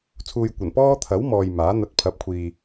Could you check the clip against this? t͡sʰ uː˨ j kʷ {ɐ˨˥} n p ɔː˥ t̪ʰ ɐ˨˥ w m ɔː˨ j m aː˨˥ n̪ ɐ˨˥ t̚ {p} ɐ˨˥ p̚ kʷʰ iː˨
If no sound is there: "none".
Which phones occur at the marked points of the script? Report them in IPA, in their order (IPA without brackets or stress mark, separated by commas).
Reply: ɐ˨˩, pʰ